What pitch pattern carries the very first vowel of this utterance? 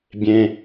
high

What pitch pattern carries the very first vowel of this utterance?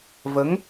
rising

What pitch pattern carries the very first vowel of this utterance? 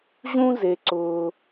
high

